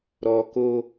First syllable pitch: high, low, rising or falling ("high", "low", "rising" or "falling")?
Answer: low